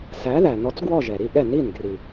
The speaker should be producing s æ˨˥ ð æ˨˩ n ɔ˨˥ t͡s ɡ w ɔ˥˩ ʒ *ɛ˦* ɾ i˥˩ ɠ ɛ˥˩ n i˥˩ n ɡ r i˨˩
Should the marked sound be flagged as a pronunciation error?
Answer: yes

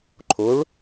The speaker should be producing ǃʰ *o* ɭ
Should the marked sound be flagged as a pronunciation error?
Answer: no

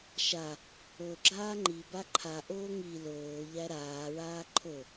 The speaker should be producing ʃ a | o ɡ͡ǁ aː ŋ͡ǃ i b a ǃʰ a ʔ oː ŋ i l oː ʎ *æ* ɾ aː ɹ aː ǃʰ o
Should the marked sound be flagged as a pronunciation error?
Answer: no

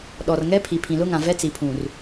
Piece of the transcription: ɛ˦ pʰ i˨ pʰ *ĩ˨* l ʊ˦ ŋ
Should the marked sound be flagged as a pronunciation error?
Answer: no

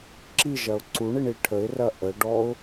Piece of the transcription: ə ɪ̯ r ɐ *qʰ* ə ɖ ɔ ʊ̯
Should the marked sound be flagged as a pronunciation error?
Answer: yes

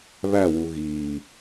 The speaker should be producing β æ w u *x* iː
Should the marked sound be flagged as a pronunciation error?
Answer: yes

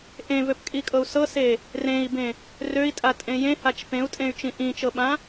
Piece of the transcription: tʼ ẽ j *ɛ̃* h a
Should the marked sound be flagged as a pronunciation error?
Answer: yes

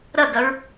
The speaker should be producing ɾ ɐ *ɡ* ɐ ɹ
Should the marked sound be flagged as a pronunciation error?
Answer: no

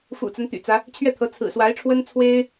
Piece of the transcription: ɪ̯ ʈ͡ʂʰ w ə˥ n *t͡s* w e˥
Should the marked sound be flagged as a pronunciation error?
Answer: yes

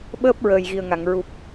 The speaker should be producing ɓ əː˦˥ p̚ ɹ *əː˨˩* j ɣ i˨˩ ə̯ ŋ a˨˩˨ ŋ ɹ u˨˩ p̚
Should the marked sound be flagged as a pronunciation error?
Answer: no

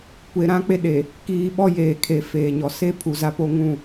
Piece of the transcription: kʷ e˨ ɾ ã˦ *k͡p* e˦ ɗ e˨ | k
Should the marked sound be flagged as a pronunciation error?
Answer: no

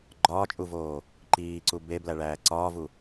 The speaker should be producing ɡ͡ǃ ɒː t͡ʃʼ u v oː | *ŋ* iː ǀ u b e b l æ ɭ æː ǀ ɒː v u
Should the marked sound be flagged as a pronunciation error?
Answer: yes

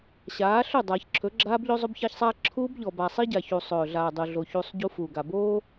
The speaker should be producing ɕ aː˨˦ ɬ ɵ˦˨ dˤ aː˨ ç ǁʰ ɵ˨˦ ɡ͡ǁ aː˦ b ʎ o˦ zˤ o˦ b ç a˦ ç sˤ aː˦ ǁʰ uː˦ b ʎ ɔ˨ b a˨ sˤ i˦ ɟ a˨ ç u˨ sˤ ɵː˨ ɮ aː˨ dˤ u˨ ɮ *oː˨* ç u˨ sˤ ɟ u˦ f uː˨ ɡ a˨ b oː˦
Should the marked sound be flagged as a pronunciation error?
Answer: yes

